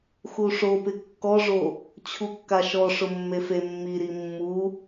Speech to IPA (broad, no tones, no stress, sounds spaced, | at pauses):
x u ʂ o p ɪ kː ɔ ʐ o | t͡ɕʰ u kː a ʃ ɔ ʂ ʊ mː e f e mː i ɾ i mː u